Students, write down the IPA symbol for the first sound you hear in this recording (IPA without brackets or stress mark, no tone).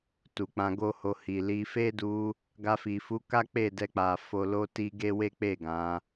t